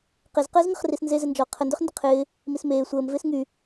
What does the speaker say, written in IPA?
q e z q əː z ŋ ə χ r i s n z e z ɪ n d͡ʒ ɔ qʰ ə n d ʏ χ n d ə qʰ ɪː | m i s m eː sʷ əː m v ɪː s ŋ y

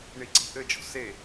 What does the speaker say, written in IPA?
ɳ i ǀ i̤ ʔ ɘ d͡ʒ ɔ̤ s e

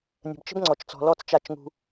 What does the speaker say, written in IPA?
nʲ ə̤˨ b t͡ʃ ə̤˦ b ŋ͡ǀ ɔ˨ t͡ʃ t͡s ɔ̤˨ l ɔ˦˨ t͡s t͡ʃ a˦˨ t͡ʃ ŋ ṳ˦

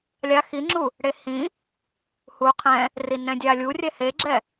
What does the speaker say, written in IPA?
lʲ a x i ŋ͡ǁ u | ɽ e h ĩ | h u qʰ ɛ̃ | r i n ɛ̃ dʲ a lʲ u rʲ ɛ h e ɡ͡ǁ ɛ

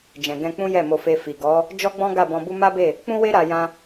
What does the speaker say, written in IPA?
d͡ʒ ɛ̃˨ ɡ ɛ̃˧ k͡p ũ˦ j ɛ˦˨ m o˧ f e˧ f i˨ ɡ ɔ˨˦ | d͡ʒ ɔ˦ ɡ͡b ɔ̃˦ ɡ a˦˨ b ɔ̃˧ b u˦ m a˦ b e˦˨ | k͡p ũ˦ w e˦ ɾ a˧ j ã˧

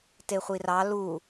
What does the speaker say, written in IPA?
t e χʷ i r ɑ l u

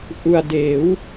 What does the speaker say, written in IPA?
ʔ u˧ a̯ d eː˩˦ w

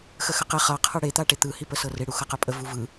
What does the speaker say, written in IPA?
x ə x ə q e χ ʌ qʰ ə ɽ e t̪ a ʈ e t̪ ɯ h i p ə s ɤ r e ɽ u x ɤ q ə pʼ ə v u v ɯ

